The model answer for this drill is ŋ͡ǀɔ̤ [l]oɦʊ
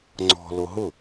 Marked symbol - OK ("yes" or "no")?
yes